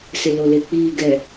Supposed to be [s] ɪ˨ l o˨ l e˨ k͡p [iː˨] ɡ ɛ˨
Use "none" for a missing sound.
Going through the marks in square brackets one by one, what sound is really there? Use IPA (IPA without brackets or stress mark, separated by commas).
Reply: s, iː˨